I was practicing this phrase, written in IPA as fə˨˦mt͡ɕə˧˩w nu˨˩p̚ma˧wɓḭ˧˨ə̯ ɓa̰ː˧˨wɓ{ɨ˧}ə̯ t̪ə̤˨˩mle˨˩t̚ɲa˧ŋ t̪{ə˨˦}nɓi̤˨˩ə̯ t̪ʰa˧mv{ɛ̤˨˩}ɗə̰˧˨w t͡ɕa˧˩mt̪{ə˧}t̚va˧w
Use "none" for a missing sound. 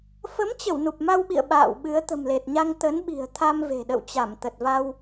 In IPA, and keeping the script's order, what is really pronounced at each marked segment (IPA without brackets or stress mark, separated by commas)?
ɨ˨˦, ə˨˦, e̤˨˩, ə˨˩